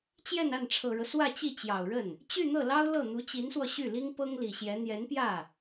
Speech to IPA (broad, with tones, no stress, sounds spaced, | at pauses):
t͡ɕ j ɛ˥˧ n a˥˩ n ʈ͡ʂʰ ɤ˨˩ ɻ ɤ˦ s w ä˥˧ t͡ɕ i˥˩ t͡ɕ j ɑ˨˩ ʊ̯ ɻ ə˥˩ n | t͡ɕ y˥˧ n̪ ɤ˥˩ l ɑ˥ ʊ̯ l ɤ˥˩ n̪ u˧˥ t͡ɕ i˧˥ n s w ɔ˧ ɕ y˥˩ l i˥ ŋ p ɤ˥ ŋ l i˨˩ ɕ j ɛ˧˥ n̪ j ɛ˧˥ n p j ä˥˩